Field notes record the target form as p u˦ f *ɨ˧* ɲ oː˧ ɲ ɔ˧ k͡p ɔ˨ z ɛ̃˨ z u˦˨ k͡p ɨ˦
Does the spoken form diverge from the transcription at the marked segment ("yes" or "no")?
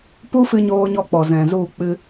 no